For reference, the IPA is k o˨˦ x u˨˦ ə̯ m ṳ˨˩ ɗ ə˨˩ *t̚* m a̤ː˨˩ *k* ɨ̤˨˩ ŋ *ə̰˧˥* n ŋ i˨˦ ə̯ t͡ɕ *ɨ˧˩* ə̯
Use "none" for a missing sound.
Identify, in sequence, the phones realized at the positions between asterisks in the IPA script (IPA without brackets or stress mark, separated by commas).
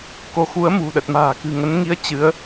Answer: t̚, k, ə˨˦, ɨ˨˦